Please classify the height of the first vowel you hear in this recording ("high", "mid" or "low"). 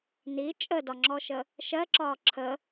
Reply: high